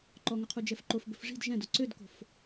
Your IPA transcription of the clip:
ǃ ɔ ŋ ɵ qʰ u d͡ʒ ɛ f ǃ o f b ɵ f ʐ i̤ d ʒ ɛ̃ d o ǀ ø d k o̤ f

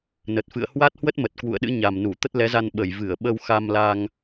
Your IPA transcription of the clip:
n ə˨˩ t̚ f ɨ̰˧˨ ə̯ h w a˦˥ t̚ h w ə˦˥ t̚ m ə˨˩ t̚ k w ṵ˧˨ ə̯ ɗ ɨ̰˧˥ ɲ a˨˩ m n u˧˩ t̪ ə˦˥ t̚ l ɛ˨˦ z a˧ n ɓ ə˧˩ j v ɨ˧˩ ə̯ ɓ ə˧ w x a˧ m l aː˧ ŋ

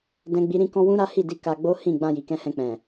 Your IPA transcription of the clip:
d ɛ̃˧ ɡ͡b i˧ ɾ ĩ˦ k ɔ̃˦ w ũ˦ ɾ a˦ h i˦˨ d i˧ k a˧ ɡ͡b o˦ h ĩ˦˨ ɡ͡b ã˧ j i˨ k ɛ̃˧ h ɛ̃˧ k͡p ɛ̃˨

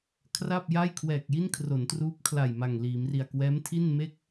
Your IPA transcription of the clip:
kʰ r a˥˩ p̚ j a˥˩ j kʰ w ɛː˨˩ k̚ j i˥˩ n kʰ r o˩˦ n t r uː˦˥ p̚ kʰ l a˨˩ j m a˨˩ ŋ l iː˩˦ m r i˨˩ a̯ k w ɛː˦˥ m tʰ i˥˩ n m e˥˩ k̚

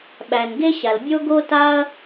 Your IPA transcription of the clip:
ɓ æ˩ n ɡ e˥ ɕ a˩ l bʲ o˥ ɡ o˥ t a˥ ɐ̯

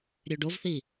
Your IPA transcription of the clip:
ɾʲ ø ɖ o v θ i

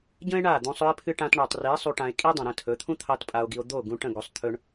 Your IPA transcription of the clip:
ɟ ə̃˦ e̯ ɳ a˦˨ d̪ ũ˧ sˤ ɵ˧ e̯ pʰ ɨ˧ ʈ ã˧ t ɳ u˨ tˤ r i˨˦ sˤ u˧ ʈ ã˧ e̯ kʼ i˦ dˤ ĩ˨ ɾ ə̃˦˨ tʰ ɵ˨˦ t̪ʰ ũ˦ t̪ʰ ɑ˦ t pʼ a˧ o̯ ɡ i˧ o̯ d̪ o˦˨ ɡ ũ˧ ʈ ə̃˦˨ ɡ o˧ sˤ t̪ʰ ɵ˦ ɳ

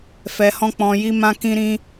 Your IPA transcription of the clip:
f ɛ˧ h ɔ̃˦ k͡p ɔ̃˧ j i˦ m ã˦ k ĩ˦ ɾ ĩ˦

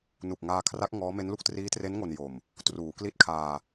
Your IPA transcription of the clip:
n u˨˩ k̚ ŋ aː˧ kʰ r a˦˥ k̚ ŋ ɔː˦˥ m e˦˥ n l u˥˩ k̚ t r iː˦˥ t r e˦˥ n ŋ o˧ n j o˨˩ m | t r uː˩˦ k l i˥˩ t̚ kʰ aː˧

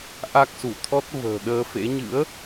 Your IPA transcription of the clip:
ʔ a˦˥ k̚ s u˧˩ t̪ʰ ɔ˦˥ t̚ v ə̤ː˨˩ ɗ əː˧ f ḛ˧˥ ɲ ɨ̰˧˥ ə̯

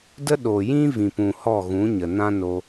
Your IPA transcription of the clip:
d ə˦ ɗ o˨ j ĩ˦ v ĩ˨ p ũ˨ h ɔ˦˨ ɣ ũ˨˦ ɲ ə˨ n ã˦ n o˧

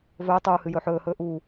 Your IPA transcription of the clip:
v ɵː tˤ uː h ɨ j ɵː ħ ɵː h ɵː ʔ uː

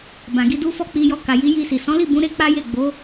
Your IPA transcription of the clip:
b ã˨ ɡ i˧ d u˦ f ɔ˦˨ k͡p i˧ j ɔ˧ k a˨ j i˨˦ j i˧ s i˨ s ɔ̃˨˦ l i˦˨ b ũ˨˦ ɾ e˦ k͡p a˦ j e˦˨ ɡ͡b o˨˦

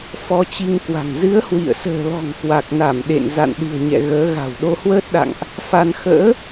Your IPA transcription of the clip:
f ɔ˧ t͡ɕ i˧ ŋ k w a̤˨˩ ŋ z ɨ˨˦ ə̯ h w ḭ˧˨ ə̯ s ə̤ː˨˩ l ɔ̤˨˩ ŋ k w a˨˩ k̚ n a˧˩ m ɗ ḛ˧˨ n z a̰˧˨ n ɗ ɨ̤˨˩ ə̯ ɲ ɛ̰˧˨ ɣ əː˨˦ ɣ a̤˨˩ w ɗ o˧ h w əː˦˥ t̚ ɗ a̰˧˨ ŋ ʔ | f a˧ n x ə̰ː˧˥

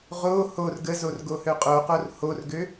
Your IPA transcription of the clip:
ʁ o h o r ɡ ə z o r ɡ o h ø qʼ o q o r h o r ɡ ø

